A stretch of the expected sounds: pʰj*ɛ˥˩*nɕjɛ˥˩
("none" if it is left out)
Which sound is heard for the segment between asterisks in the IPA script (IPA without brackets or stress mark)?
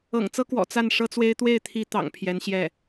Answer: ɛ˧˥